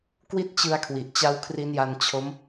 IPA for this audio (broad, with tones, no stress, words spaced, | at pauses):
kwi˦˥t̚t͡ɕɯ˧a̯kʰwi˨˩ʔ t͡ɕa˦˥wkʰri˦˥nja˧n t͡ɕʰo˦˥m